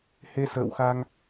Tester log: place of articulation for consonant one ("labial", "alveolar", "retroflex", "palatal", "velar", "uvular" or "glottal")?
glottal